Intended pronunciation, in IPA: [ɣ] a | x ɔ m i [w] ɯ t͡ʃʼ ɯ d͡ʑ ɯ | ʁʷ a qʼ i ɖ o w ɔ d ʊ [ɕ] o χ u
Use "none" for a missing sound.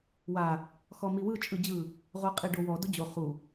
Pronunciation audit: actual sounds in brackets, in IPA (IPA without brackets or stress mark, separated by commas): w, w, d͡ʑ